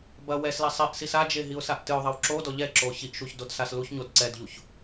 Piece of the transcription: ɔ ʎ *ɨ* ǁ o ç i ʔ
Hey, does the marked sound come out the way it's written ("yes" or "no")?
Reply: no